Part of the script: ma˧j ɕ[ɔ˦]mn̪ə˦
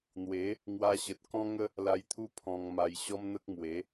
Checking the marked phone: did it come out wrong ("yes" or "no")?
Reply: no